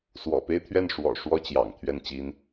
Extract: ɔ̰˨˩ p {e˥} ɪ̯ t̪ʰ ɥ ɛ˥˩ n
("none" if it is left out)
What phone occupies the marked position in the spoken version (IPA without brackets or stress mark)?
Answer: e˥